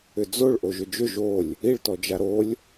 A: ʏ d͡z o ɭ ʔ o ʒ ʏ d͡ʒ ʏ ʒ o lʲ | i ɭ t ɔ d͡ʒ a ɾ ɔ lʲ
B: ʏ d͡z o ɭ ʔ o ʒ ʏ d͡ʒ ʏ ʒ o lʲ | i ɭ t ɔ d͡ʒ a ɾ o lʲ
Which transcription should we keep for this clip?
B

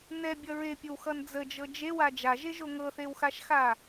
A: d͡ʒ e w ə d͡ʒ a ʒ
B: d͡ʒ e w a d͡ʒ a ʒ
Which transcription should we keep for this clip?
B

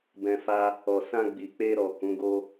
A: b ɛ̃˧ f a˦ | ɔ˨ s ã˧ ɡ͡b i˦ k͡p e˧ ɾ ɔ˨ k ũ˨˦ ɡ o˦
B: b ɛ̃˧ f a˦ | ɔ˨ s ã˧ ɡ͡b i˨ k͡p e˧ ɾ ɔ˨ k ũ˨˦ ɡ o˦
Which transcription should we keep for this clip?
B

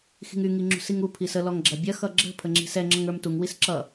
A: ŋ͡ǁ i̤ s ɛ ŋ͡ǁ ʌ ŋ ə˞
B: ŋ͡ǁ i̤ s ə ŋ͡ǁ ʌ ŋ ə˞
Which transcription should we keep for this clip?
A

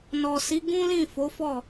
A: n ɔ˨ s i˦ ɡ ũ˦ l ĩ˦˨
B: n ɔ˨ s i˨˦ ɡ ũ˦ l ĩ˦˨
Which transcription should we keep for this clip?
B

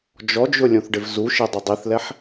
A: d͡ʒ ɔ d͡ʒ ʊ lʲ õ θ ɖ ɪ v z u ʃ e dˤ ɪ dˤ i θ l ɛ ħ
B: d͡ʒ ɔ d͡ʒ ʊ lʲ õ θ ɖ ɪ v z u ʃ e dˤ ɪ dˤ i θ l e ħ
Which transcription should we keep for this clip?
A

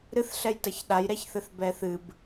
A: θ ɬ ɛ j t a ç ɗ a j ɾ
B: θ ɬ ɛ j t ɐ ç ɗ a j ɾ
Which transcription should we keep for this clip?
B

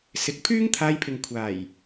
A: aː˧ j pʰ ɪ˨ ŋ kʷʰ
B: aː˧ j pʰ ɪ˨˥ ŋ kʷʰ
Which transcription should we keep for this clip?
A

